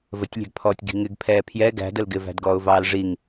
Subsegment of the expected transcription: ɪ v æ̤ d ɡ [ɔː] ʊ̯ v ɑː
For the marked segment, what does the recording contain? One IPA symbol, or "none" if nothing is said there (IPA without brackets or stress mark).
ɔː